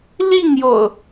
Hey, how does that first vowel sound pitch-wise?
falling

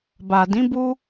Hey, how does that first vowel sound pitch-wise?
low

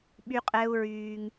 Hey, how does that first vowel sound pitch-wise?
high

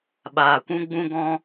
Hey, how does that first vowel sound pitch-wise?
low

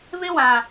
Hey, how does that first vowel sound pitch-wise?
high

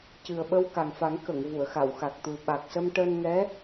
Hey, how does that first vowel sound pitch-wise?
low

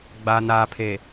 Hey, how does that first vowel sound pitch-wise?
low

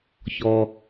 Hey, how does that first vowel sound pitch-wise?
low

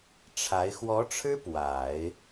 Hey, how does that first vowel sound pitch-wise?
rising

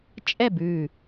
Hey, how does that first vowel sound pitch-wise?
falling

